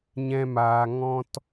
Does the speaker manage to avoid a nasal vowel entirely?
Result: no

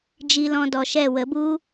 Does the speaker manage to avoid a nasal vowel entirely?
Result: no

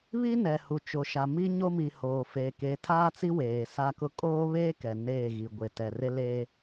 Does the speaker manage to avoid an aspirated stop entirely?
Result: no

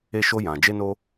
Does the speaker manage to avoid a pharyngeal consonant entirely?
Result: yes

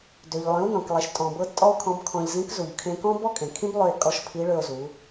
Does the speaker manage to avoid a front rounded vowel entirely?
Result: no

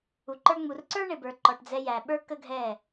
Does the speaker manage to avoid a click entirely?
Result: no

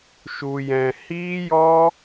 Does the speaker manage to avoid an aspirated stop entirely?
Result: yes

